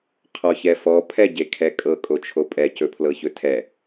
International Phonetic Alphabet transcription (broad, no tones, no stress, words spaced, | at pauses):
qʰɔçɛfɔ pʰɛɟekʰɛkʼɤ kʼot͡ʃʰopʼɛ cɵpʰlɤçɵtʰɛ